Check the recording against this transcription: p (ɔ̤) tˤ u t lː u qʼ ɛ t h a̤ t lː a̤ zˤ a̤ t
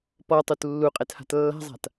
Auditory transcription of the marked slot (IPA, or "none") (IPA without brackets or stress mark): ɔ